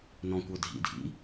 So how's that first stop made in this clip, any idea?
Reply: plain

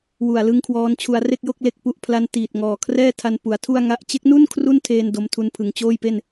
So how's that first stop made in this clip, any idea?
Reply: aspirated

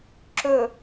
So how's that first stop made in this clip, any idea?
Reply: click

